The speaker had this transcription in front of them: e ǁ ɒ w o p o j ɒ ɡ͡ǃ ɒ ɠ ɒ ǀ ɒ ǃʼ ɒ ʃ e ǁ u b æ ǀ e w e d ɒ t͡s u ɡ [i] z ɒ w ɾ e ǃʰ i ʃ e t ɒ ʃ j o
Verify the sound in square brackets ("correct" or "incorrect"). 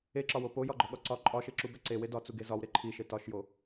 incorrect